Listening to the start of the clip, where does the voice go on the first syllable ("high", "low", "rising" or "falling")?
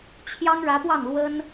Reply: high